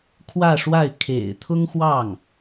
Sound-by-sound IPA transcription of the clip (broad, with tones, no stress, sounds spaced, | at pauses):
kʰ w ä˥˧ ʂ w a˥˩ ɪ̯ kʰ ḛ˨˩ ɪ̯ t̪ʰ ʊ˥ ŋ x w ɑ˥˩ ŋ